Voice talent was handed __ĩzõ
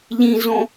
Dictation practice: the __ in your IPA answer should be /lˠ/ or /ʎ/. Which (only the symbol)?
ʎ